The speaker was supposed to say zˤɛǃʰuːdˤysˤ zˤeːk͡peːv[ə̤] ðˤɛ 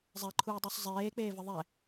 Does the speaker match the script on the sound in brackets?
no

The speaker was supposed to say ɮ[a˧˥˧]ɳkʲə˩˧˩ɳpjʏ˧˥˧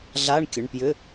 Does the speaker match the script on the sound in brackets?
yes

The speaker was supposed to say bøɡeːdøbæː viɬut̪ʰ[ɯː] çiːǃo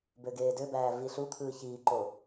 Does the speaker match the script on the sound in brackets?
yes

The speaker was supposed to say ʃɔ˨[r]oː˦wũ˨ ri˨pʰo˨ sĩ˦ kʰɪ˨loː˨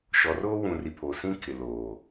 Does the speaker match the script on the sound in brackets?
yes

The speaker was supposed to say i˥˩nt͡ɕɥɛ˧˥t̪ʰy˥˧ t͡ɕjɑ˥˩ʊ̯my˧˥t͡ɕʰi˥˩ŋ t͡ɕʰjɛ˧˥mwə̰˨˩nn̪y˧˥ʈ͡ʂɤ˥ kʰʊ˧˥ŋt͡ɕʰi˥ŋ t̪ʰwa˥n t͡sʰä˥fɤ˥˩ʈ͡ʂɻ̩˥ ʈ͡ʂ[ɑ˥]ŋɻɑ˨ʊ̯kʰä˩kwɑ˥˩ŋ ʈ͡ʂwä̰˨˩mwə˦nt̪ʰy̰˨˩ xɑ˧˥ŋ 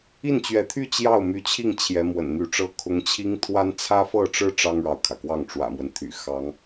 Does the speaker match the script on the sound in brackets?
yes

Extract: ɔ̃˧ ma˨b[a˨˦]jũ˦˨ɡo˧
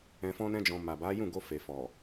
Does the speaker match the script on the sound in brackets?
yes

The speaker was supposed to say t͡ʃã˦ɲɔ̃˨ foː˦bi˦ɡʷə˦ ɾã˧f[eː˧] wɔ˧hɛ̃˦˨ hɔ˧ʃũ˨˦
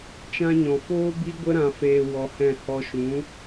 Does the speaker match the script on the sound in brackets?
yes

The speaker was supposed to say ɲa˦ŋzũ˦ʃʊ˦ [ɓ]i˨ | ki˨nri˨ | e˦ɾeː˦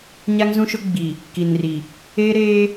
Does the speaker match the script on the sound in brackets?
no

